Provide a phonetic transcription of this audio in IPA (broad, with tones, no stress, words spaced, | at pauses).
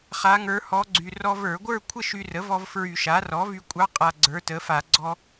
χa˧˥ŋə˞˧˥hɔ˧˥ ɡ͡ǀy˧ rɔ˧və˞˧˩˧ɡʷə˞˥˧ kʷʰə˥˧ʃy˧rə˩˥vɔ˧v fɹy˧˩˧ʃa˩˥ rɔ˩˥vy˧kʷʼɑ˧˥ qʼa˧ɡ͡ǀə˞˩˥tə˩˥fa˧˩˧ ɡ͡ǀɔ˧